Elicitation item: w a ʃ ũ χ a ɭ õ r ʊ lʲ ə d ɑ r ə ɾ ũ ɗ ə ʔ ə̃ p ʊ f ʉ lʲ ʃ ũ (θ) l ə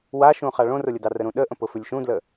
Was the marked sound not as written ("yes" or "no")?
yes